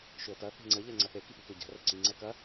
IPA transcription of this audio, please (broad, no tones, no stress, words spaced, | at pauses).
ʃʏə̯tɐ θe̤ŋ͡ǀə ʎɛŋ͡ǀɐθe kipikøɟa̤ rəǀi ŋ͡ǀɛkɐ